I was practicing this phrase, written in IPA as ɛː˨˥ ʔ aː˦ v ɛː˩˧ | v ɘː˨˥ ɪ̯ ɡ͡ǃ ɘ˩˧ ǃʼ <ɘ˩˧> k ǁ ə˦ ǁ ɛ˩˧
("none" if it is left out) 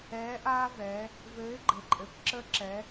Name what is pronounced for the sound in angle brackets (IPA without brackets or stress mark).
ɘ˩˧